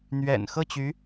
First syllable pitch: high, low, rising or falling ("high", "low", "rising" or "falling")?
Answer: low